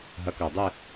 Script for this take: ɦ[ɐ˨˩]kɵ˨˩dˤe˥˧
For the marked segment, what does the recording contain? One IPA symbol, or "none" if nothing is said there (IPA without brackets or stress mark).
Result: ɐ˨˦